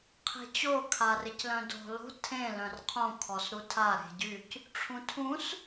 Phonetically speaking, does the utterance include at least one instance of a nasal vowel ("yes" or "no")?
yes